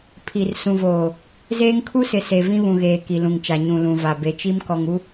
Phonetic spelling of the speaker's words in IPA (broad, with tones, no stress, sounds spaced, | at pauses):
pʰ i˨ r s ũ˨ v oː˨ | z eː˦ ŋ kʰ u˦ s ɪ˨ s e˨ v ĩ˦ β ũ˨ ɣ eː˨ k i˨ l ũ˨ ŋ t͡ʃ a˨ ɲ ũ˨ l ũ˨ v a˨ b e˨ t͡ʃ i˦ m k ɔ˨ ŋ u˦